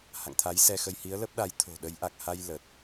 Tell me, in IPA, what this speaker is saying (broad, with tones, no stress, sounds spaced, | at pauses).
h a̰˧˨ ŋ t̪ʰ a˨˦ j s ɛ˧ x ə˧ j h i˨˦ ə̯ l ə˦˥ p̚ ɗ a˨˦ j t̪ʰ o̤˨˩ ɗ ə˨˦ j ʔ a˨˩ k̚ h a˧ j l ə˨˩ t̚